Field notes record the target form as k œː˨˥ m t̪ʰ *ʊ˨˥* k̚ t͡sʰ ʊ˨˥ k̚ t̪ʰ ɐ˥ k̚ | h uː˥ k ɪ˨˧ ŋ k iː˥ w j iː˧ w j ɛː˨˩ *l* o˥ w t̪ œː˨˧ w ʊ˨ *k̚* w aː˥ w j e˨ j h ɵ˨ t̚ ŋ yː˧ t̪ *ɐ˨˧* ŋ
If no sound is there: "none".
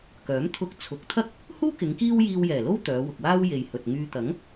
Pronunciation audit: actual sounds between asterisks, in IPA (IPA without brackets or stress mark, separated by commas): ʊ˧, l, k̚, ɐ˨˥